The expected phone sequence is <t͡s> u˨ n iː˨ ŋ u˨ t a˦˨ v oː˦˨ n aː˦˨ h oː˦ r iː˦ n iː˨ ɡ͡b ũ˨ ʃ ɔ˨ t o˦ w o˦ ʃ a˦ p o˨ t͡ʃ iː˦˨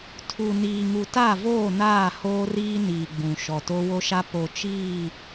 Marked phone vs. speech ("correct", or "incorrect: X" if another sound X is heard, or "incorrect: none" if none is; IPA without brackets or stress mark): incorrect: tʰ